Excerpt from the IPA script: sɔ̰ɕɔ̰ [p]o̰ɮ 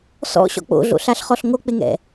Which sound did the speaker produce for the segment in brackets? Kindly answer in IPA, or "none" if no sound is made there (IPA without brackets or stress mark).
k͡p